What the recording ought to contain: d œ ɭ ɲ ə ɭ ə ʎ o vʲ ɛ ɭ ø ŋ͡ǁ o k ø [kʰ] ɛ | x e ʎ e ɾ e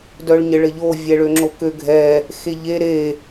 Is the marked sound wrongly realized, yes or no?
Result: yes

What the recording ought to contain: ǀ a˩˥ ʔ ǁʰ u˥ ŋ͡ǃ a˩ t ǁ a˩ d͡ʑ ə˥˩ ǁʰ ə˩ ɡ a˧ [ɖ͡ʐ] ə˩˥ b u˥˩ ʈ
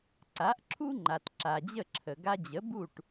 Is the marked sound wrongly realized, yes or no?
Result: yes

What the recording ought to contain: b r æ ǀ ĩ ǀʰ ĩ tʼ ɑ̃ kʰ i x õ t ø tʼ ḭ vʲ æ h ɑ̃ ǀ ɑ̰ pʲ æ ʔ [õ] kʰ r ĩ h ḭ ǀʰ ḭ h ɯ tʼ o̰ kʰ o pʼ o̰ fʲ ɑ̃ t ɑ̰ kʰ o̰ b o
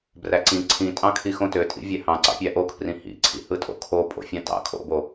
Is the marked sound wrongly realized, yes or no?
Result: yes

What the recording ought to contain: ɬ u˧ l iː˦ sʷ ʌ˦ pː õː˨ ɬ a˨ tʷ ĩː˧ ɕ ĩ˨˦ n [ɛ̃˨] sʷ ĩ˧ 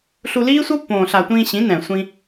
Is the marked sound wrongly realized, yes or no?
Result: no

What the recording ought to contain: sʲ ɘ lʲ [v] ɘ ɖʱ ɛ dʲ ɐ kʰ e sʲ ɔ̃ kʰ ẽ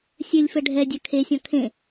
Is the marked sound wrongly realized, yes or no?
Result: yes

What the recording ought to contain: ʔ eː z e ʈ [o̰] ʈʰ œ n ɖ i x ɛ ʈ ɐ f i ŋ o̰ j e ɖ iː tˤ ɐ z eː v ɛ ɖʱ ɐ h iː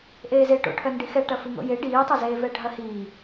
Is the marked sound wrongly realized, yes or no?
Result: no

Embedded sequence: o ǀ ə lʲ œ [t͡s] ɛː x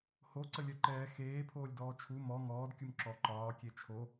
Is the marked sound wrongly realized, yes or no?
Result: yes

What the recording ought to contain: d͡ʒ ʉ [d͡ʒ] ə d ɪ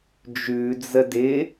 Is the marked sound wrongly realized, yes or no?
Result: yes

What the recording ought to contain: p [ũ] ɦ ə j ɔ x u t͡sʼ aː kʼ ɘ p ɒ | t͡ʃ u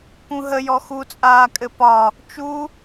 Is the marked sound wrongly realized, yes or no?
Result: no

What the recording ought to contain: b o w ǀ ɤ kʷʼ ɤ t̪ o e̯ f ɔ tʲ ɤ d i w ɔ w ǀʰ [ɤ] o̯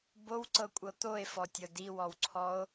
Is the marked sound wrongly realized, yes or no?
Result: yes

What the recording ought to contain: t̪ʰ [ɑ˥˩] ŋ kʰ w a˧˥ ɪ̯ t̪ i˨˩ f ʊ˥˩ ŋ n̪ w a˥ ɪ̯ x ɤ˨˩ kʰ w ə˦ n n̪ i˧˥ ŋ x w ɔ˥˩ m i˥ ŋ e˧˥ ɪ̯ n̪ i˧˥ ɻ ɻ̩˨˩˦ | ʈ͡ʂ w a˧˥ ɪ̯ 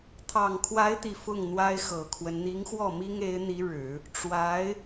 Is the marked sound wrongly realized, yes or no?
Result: yes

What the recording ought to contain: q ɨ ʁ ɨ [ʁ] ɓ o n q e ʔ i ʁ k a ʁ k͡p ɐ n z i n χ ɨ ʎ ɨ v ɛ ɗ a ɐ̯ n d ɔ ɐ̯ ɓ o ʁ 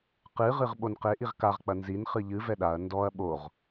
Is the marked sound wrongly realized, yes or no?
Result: no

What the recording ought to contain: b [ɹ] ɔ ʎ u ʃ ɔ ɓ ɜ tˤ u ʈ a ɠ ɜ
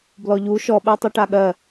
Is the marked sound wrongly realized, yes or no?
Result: yes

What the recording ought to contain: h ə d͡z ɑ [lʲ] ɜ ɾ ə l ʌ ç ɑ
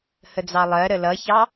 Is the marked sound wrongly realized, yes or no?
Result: yes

